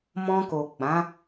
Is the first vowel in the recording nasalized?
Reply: yes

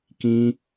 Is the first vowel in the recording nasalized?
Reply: yes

